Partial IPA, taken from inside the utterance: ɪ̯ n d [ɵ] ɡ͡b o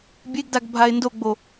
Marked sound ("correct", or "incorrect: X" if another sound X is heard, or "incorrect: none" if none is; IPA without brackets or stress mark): incorrect: o